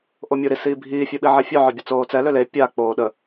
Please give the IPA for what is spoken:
ʔomʲuɾi siːbʱiː fʲœɓiʕefʲœ ʕœbʲət͡soːt͡sɛ løle pʲa k͡poːɗə

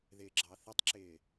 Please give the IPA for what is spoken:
ðɪːɡ͡ǁɑθətˤǁɪː

